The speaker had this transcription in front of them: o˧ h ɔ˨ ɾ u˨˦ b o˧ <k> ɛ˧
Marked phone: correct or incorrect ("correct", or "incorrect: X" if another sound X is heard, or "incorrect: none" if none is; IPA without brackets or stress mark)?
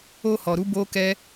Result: correct